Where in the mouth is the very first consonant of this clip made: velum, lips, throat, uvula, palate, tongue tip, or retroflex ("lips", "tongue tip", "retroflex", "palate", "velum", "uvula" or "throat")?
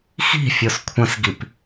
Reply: velum